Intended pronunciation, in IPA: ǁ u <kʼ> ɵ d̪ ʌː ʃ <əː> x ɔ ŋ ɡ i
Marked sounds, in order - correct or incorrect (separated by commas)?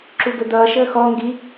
incorrect, correct